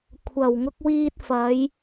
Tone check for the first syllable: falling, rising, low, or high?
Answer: low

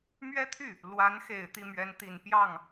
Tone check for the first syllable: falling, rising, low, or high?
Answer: high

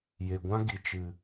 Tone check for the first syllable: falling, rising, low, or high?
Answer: low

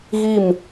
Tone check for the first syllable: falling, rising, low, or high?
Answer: falling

